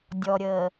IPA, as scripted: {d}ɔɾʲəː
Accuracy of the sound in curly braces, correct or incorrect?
incorrect